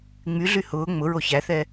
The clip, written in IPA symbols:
ŋ͡m y ɮ y h ʊː ŋ͡m ʊ ɹ o ç æ θ ɛ

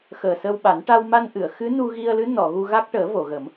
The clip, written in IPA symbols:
x əː˨˩ s ə˧ w ɓ a˨˩˦ n ʈ a˧ w m a˧ n ʔ ɨ˨˩˨ ə̯ x ɨ˧˥ n u˧ ɣ i˧ ə̯ l ɨ˧˥ n ɔ˨˩˨ ɣ u˧ ɣ a˦˥ k̚ ʈ əː˨˩˦ v o˨˩˨ ɣ ə˨˩˦ m

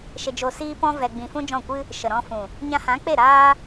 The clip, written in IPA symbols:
ʃ e˧ d͡ʒ o˧ s iː˦ p ɔ̃˦ v ɛ˨ ɡ͡b ĩ˨ f ũ˦ d͡ʒ ɔ̃˦˨ kʷ ɨ˦ | ʃ ə˨ ɾ ɔ̃˧ f ũ˨ | ɲ ã˧ h ã˨˦ k͡p e˦˨ ɾ aː˦

